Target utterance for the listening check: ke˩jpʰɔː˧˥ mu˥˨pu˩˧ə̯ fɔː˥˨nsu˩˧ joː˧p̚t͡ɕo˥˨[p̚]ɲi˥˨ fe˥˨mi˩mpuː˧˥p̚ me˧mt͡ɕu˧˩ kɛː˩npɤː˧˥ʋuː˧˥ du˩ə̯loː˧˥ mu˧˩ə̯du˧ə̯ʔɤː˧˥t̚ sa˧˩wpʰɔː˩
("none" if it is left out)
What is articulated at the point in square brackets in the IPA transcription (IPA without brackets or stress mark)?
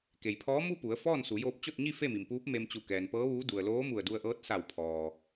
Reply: t̚